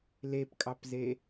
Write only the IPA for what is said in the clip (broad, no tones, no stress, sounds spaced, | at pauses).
l e p kʼ ɑ p z e